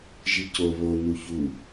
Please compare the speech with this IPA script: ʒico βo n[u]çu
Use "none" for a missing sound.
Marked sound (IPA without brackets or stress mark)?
u